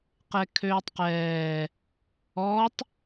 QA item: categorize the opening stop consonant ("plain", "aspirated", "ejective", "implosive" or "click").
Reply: plain